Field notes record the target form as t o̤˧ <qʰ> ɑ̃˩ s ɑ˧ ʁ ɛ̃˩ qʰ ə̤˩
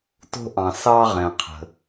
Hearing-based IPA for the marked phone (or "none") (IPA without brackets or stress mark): ʔ